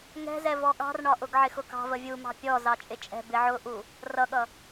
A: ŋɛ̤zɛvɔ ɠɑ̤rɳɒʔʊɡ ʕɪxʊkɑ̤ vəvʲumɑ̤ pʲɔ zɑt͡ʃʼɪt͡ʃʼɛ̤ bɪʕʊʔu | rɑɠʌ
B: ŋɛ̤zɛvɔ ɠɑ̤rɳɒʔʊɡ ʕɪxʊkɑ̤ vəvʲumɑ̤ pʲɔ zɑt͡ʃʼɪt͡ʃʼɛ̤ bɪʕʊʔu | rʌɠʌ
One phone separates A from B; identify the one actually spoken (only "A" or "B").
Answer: B